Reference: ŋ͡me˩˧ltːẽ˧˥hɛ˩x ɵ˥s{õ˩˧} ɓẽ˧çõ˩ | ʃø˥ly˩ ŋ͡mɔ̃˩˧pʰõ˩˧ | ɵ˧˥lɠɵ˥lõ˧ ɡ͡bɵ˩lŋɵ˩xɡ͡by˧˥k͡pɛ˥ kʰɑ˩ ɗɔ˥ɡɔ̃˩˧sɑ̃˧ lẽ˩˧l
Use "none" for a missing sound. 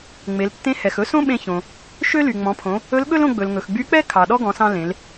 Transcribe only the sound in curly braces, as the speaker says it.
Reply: õ˥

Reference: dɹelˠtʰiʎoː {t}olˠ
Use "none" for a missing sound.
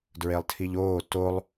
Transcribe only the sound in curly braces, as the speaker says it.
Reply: t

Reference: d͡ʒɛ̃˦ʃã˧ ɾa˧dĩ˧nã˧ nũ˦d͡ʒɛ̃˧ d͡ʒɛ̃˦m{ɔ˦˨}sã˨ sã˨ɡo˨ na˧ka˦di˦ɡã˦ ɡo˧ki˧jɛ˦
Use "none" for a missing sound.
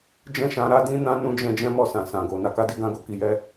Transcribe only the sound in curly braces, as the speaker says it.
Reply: ɔ˦˨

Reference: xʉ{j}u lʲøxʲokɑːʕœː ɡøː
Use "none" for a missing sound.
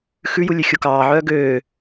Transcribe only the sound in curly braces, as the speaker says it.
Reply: j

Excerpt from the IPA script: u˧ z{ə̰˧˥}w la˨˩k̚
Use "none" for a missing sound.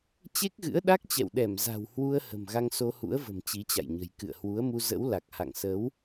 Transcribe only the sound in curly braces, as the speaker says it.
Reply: ə̰˧˥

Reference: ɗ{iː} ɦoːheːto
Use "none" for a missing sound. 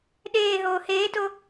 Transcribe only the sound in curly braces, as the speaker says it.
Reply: eː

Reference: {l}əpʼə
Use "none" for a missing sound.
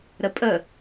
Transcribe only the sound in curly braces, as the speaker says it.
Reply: ɾ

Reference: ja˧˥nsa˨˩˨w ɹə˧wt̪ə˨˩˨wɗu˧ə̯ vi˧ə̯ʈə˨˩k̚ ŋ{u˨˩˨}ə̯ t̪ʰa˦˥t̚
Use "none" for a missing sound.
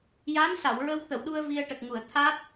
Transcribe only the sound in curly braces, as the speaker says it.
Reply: u˨˩˨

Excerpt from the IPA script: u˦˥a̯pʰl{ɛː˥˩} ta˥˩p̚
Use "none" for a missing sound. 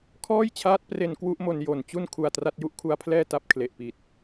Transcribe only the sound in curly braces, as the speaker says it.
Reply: ɛː˥˩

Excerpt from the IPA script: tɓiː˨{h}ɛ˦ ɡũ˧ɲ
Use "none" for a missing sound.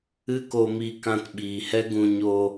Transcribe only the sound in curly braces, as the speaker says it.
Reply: h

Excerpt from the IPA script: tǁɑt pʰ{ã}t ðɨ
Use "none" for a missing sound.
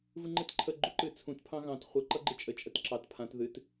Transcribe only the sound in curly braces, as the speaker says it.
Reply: ã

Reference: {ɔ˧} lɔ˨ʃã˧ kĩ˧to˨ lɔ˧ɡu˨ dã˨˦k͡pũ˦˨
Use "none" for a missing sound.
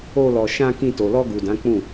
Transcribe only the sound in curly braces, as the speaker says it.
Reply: o˧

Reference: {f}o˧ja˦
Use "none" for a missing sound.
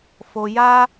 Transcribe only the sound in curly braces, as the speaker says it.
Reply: f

